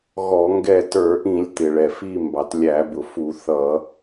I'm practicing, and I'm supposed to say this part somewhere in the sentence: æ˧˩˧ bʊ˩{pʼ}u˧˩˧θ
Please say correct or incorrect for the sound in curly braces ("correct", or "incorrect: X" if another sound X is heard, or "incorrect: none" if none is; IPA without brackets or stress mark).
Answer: incorrect: f